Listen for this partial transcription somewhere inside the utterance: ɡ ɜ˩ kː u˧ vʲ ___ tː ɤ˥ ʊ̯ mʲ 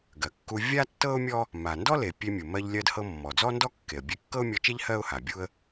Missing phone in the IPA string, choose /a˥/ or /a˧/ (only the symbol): a˥